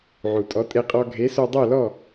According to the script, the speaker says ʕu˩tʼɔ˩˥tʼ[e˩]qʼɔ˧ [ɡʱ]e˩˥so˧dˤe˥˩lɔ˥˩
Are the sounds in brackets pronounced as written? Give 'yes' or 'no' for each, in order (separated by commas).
no, yes